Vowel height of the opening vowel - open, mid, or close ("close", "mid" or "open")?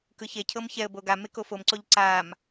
close